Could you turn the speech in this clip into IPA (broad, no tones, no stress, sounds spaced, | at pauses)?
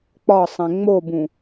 k͡p ɒ sˤ ẽ ŋ͡m o b ũ